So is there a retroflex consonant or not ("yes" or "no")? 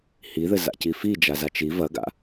no